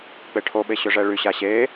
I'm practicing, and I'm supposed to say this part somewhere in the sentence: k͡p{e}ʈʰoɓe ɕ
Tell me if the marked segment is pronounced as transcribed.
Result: yes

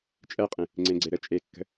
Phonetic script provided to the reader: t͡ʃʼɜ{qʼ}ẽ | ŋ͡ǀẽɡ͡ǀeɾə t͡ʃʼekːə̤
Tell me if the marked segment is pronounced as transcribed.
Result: yes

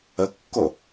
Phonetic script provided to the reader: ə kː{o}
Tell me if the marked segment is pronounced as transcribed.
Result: yes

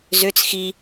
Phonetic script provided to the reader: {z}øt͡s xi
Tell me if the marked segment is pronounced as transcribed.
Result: yes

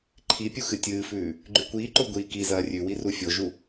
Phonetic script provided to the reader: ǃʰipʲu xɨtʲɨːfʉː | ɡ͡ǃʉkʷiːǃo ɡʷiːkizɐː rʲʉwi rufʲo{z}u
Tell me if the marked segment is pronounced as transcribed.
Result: no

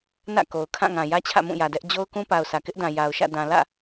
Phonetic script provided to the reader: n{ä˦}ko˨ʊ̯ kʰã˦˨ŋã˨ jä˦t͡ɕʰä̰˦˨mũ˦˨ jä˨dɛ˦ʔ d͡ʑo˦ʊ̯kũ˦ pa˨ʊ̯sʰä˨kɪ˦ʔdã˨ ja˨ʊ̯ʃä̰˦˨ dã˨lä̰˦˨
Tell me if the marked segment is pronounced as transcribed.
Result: no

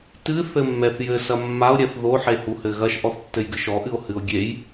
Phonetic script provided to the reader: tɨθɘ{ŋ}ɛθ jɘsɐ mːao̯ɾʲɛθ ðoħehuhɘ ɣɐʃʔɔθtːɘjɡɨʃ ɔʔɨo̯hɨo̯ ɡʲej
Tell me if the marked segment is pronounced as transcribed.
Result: no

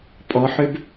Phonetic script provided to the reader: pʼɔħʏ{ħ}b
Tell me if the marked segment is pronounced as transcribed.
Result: no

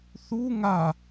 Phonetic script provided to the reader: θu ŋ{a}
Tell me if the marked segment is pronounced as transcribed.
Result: yes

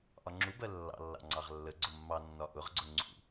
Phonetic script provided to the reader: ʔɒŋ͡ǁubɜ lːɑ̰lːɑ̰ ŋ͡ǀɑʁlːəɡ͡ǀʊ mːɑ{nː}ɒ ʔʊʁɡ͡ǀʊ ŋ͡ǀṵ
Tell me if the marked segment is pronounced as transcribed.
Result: yes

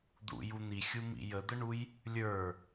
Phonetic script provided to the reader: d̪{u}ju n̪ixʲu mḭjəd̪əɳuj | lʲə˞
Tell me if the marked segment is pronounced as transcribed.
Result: no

